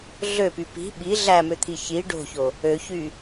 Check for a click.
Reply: absent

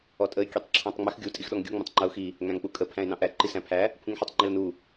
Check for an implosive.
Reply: present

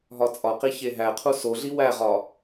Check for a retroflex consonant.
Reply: absent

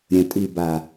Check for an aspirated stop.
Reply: absent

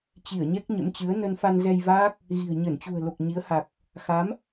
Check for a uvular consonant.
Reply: absent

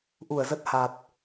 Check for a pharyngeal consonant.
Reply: absent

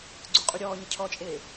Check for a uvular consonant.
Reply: present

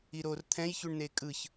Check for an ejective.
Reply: present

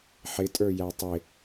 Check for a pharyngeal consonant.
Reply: present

